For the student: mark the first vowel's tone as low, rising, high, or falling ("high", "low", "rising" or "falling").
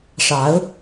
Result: rising